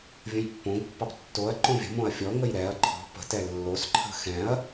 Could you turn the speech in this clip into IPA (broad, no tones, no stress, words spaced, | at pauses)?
vʲõjpːõɡpːɑp tːoɐ̯ǃõ vʲə̤mõɐ̯ fʲɔŋəj ɾɛɐ̯ ǃʰɔ̤ pə̤tɛ lːosǃʰə̤ xɛ̃ɐ̯